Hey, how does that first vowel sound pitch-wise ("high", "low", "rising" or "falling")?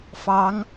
rising